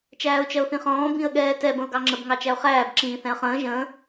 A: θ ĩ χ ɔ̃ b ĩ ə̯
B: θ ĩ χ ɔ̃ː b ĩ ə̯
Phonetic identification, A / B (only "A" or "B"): B